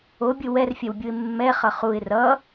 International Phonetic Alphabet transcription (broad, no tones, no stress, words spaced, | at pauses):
obʲɯ wɛrfʲɛwbʲuɪ̯ mːɛχʌ χuɪ̯ rʌ